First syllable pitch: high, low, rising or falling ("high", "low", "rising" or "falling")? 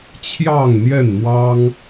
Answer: falling